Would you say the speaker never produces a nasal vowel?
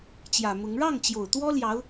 yes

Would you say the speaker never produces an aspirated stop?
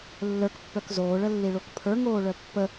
no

